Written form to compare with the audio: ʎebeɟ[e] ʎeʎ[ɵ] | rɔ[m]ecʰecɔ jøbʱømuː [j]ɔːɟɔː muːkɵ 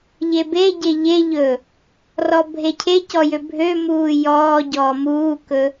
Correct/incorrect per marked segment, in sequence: correct, correct, incorrect: bʱ, correct

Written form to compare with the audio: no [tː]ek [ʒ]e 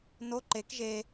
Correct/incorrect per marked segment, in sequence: incorrect: ǃ, correct

